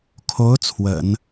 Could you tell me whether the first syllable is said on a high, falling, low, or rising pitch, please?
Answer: rising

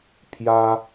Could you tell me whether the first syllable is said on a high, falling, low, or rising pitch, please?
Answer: high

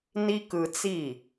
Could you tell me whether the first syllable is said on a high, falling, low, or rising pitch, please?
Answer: high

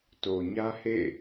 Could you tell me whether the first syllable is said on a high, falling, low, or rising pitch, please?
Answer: low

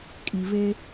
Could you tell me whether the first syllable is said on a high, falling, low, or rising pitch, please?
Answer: low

